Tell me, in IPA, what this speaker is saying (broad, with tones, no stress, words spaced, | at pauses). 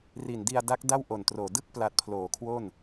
ri˨˩ndi˧a̯da˦˥k̚ da˥˩wʔo˨˩ntroː˨˩ dɯ˥˩k̚pla˨˩t̚ pʰloː˨˩kʰwo˥˩n